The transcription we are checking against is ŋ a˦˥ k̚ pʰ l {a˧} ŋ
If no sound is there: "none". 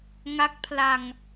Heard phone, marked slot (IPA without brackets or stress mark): a˧